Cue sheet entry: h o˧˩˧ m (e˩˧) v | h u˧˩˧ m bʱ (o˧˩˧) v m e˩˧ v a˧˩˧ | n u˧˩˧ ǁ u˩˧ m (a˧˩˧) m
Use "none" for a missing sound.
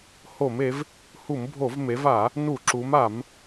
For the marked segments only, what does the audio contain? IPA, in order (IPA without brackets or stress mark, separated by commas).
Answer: e˩˧, o˧˩˧, a˧˩˧